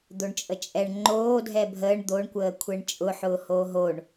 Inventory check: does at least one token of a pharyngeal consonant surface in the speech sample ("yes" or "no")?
yes